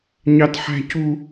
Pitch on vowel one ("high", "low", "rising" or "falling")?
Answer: high